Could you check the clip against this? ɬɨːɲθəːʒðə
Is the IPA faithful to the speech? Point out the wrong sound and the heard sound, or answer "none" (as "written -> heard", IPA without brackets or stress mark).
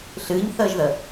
none